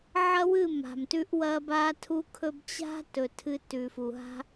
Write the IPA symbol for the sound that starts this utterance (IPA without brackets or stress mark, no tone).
ʕ